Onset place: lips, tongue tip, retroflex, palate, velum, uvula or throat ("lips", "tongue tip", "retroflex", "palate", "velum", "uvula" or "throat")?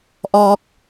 throat